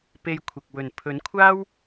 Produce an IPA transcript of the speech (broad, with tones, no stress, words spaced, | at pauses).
pe˧jkʷʰɪ˨k̚ wɵ˨˩npʰɵ˨˥nkʷʰaː˥w